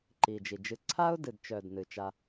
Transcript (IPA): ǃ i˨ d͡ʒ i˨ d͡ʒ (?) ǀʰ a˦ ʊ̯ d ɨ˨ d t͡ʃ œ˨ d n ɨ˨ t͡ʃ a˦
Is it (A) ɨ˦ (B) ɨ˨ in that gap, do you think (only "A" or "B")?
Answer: A